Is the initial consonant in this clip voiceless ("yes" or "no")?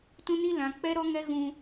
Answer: yes